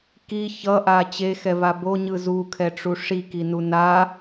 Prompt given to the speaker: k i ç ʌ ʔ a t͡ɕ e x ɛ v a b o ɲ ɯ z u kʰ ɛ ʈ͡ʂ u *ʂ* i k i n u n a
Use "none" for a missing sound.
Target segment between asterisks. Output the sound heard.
ʂ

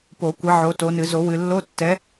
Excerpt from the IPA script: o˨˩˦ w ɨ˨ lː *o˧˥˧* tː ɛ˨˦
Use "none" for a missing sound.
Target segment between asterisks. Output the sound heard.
o˧˥˧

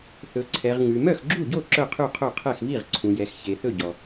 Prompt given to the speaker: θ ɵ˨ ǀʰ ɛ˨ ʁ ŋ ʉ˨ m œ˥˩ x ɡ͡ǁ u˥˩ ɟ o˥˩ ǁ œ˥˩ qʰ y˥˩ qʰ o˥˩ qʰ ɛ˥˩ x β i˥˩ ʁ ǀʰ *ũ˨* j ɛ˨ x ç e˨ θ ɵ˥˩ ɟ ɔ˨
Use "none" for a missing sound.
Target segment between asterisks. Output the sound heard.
ũ˨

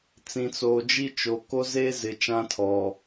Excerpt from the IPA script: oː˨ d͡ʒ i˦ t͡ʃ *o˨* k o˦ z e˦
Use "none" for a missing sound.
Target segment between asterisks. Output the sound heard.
o˨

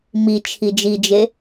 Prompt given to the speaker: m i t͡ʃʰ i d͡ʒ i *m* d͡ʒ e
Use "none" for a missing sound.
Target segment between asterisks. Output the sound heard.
none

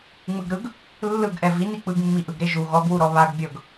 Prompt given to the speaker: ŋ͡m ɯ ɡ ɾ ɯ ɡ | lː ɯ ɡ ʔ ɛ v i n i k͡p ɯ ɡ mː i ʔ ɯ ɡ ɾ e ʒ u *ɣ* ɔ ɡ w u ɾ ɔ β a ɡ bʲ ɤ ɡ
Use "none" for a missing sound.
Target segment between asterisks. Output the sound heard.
ɣ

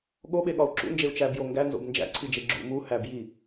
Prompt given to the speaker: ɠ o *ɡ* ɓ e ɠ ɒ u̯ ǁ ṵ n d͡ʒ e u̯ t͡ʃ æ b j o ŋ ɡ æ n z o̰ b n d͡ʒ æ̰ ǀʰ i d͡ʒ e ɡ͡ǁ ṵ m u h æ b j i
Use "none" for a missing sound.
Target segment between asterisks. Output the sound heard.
none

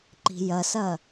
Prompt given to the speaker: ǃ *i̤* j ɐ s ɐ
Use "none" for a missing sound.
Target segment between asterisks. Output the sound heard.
i̤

